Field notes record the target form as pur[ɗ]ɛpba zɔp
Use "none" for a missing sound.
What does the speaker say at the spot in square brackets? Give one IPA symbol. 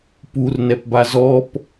n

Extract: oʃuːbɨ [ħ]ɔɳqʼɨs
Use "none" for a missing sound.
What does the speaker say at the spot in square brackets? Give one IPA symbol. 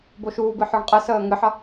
ħ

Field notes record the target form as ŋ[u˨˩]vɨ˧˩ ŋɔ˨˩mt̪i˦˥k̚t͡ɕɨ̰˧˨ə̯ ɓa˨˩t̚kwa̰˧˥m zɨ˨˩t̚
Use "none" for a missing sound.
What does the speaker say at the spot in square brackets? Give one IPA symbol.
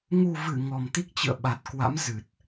u˨˩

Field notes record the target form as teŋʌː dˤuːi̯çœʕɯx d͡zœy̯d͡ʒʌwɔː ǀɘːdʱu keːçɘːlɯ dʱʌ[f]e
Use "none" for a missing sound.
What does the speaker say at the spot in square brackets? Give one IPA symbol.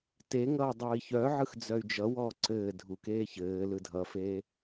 f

